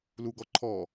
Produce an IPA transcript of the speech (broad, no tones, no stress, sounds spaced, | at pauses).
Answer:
l u ɡ ɔ ǃʰ ɔ